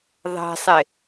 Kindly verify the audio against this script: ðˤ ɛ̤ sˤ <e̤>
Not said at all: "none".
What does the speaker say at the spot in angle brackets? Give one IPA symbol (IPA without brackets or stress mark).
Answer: e